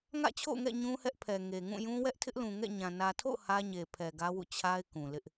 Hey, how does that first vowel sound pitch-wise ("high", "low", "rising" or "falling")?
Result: falling